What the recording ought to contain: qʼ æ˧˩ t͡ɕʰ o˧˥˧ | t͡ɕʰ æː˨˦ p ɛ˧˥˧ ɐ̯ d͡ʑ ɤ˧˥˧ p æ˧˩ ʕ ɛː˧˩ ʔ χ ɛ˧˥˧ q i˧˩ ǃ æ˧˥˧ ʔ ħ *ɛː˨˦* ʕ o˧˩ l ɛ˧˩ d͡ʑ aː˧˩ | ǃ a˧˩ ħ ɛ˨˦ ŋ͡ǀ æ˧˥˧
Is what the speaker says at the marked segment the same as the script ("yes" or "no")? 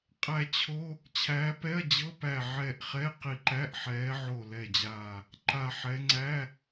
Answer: yes